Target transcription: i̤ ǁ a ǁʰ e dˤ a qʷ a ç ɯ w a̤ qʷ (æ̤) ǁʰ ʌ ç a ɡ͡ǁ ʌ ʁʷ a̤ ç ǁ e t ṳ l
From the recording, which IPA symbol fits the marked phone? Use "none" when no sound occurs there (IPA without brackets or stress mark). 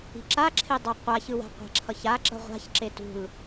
a̤